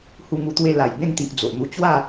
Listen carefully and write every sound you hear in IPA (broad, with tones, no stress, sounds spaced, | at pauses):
h u˧ ŋ u˧ t̪ w e˧ l a˨˩ j b ẽ˥˧ ŋ t̪ i˨ ʔ d͡z o˨ ʔ n̪ u˧ t͡ɕ w a˥˧